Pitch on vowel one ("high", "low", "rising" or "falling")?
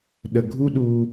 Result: low